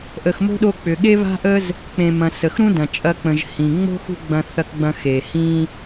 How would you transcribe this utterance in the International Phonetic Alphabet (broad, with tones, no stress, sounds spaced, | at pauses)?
ʔ ə˩ x m o̤˥ ɗ o˧ k͡p ʏ˩ ɠ e˥ β a̤˥ ʔ ə˥ z | k͡p ẽ˩ m ɐ̃˩ s ə˩ x ɾ ũ˥ d ɐ̃˩ t͡ʃʼ ɐ˧ k͡p ə̃˩ ʒ h ĩ˩ ŋ͡m o̤˥ x ṳ˥ ɡ͡b ɐ̃˧ θ ɐ˧ k ɡ͡b ɐ̃˧ x e˩ h ĩ˧